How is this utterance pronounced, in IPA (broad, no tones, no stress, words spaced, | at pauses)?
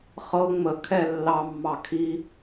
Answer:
χɤ ŋ͡məkʰɛ lːɑmːɑ kʰi